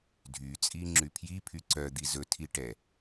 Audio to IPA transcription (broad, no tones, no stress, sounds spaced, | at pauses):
dʱ y t͡sʼ i ŋ͡ǁ y pʰ j i pʰ y ǀ œ d̪ i z ɵ tʰ i ʈ ɛ